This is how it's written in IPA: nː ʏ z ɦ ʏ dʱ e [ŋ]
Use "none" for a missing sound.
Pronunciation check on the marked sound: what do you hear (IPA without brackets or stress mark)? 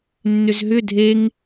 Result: ŋ